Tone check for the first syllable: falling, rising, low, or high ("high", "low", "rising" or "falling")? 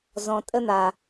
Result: low